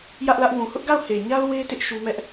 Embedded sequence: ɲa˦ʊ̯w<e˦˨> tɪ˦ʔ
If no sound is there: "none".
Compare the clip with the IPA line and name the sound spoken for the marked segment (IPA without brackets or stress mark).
e˦